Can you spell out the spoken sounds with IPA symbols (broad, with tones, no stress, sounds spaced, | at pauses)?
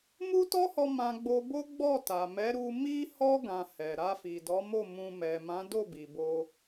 m u˦ t ɔ˦ h ɔ˧ m ã˧ ɡ͡b o˧ b o˦ ɡ͡b ɔ˦˨ t a˨ m ɛ˨˦ ɾ u˧ m i˦ h ɔ˦ ɡ ã˧ h ɛ˨ ɾ a˧ f i˨ d ɔ˨˦ m o˦˨ m ũ˧ m ɛ˨ m ã˨˦ d o˦˨ b i˨ b o˧